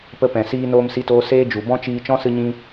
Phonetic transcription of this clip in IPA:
p ə˧ p ɛ̃˨ s iː˧ n oː˧ m s i˧ t oː˧ s eː˦ d͡ʒ u˨ b ɔ̃˦ t͡ʃ iː˧ t͡ʃ ɔ̃˦ s ɨ˦ ɲ ĩ˦

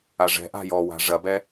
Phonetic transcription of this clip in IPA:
a ʐ ɛ̤ ʔ a̤ j ɔ w a̤ ʐ ɐ b ɛ

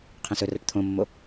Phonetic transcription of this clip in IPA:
qʰ ẽ s ɵ r ɜ ʈ t̪ʰ õ mː o

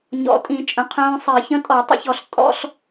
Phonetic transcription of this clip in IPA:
ɲ ɔ̰˨˩˦ tʼ ĩ˨˩˦ t͡ʃʼ œ̃˩˧˩ qʰ œ̃ː˧ sˤ i˨˩˦ ç ə̃˧˥˧ tʼ ɔ˨˩˦ tˤ ə̰˨˩˦ ç ɔ˨˩˦ ɬ tʼ ɔ̰˧˥˧ ɬ

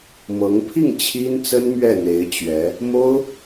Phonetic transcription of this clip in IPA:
m ɤ˧˥ ŋ pʰ i˥˩ ŋ t͡ɕʰ i˥ n t͡s ə˥ n m ɥ ɛ˥˩ n̪ e˧˥ ɪ̯ t͡ɕ ɥ ɛ˧˥ | m o˥ ʊ̯

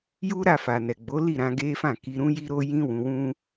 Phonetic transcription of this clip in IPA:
j u˦ ɾ a˦˨ f a˨ n ɛ˨ ɡ͡b o˨˦ l i˦˨ ɾ ã˧ ɡ e˦ f ã˦˨ k i˧ ɾ ũ˦ j i˦ ɾ o˦ j ĩ˦ w ũ˧ w ũ˦

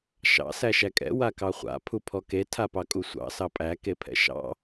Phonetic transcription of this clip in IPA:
ʃ ɑ̰ s æ ʃ æ kʼ ɛ̰ w a k ɑ χʷ a̰ pʰ u pʰ ɔ k e tʰ a p ɑ kʼ u sʷ ɑ̰ s ɑ pʼ æ k e pʰ ɛ̰ ʃ ɑ̰

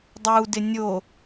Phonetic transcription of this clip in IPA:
dˤ u d ɪ nʲ o

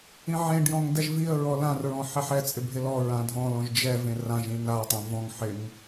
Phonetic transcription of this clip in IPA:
ĩ ʕ ẽ ɖ j ɔ̃ ŋ d ɛ ʒ v i ə̯ ɹ ɔ l ã r ɹ ɔ̃ ħ ɛ ħ ɛ t͡sʼ ɪ bʱ ɪ l ɔ ɹ ã dʱ ɔ̃ l ɔ̃ ʒ d͡ʒ ɛ v ẽ r ã ʒ ĩ n a tˤ ã v ɔ̃ ŋ ħ ɪ ŋ

